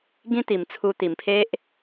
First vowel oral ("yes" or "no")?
no